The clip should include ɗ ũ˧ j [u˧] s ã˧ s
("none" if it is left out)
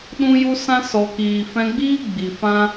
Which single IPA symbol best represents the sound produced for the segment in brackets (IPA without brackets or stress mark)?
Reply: u˧